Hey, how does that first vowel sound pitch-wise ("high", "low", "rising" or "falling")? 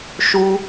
high